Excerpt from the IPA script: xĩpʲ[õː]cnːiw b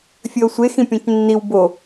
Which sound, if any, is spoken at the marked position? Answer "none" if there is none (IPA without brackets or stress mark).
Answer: õ